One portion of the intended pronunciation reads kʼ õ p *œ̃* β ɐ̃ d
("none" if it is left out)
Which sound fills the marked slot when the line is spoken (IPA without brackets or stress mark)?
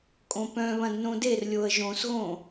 œ̃